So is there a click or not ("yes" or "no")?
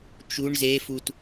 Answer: no